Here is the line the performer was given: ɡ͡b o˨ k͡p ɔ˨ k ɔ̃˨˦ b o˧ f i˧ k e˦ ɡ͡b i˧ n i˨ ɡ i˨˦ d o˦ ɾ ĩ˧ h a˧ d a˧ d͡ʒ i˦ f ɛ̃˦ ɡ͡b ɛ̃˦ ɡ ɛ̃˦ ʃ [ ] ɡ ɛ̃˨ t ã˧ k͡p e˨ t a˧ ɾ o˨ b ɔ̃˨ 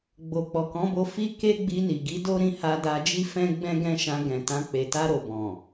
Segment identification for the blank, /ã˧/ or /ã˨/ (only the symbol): ã˧